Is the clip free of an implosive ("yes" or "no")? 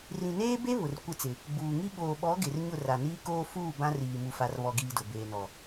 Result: no